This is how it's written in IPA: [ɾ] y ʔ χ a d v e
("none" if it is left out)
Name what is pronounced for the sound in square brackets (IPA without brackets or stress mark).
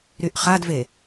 ɾ